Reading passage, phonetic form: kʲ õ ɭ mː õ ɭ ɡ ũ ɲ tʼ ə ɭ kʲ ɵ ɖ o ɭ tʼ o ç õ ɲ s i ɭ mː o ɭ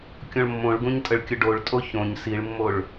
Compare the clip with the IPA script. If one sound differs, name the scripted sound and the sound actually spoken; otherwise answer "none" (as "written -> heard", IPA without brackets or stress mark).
none